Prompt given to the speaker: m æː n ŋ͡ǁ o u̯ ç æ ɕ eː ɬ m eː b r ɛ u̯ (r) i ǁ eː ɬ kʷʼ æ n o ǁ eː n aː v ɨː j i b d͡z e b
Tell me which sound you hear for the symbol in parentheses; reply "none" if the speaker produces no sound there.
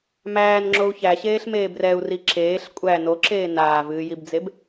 r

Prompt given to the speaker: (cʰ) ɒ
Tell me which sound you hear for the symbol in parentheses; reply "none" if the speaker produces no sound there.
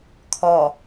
kʰ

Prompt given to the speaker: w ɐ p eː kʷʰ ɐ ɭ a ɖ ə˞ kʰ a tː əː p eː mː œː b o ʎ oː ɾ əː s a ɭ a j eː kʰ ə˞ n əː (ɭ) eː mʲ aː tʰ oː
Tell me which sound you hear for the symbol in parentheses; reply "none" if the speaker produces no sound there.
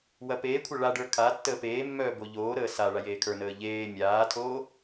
ʎ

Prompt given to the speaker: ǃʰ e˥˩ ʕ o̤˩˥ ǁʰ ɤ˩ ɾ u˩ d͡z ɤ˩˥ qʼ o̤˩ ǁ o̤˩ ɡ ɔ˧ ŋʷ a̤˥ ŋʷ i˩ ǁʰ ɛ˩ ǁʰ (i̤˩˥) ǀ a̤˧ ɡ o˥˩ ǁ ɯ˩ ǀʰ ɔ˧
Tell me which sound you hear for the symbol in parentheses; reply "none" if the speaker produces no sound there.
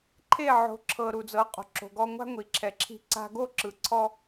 i̤˧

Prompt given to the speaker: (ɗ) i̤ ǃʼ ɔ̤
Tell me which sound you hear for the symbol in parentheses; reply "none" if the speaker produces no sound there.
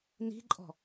n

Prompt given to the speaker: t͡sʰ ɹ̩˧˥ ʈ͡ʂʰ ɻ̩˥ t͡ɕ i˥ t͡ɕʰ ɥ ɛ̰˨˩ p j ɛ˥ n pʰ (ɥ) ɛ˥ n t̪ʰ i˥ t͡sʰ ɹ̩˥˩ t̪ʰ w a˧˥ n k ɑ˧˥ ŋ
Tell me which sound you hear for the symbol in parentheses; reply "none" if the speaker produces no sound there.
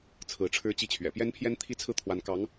j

